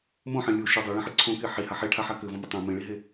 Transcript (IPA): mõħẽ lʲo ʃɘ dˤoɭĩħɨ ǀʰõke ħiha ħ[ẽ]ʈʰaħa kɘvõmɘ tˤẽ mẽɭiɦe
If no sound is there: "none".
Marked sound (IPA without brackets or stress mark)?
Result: e